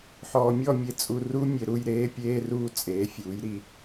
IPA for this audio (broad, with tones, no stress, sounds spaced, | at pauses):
ħ ɔː˨ mʲ ɔ˥˨ mʲ e˨ t͡sʼ u˨ r u˦˥ mʲ e˨ ɾ u˥˨ j ɾ eː˦˥ pʲ eː˧˥˧ r uː˥˨ t͡sʼ eː˩˥ fʲ uː˩˥ j ɾ i˥˨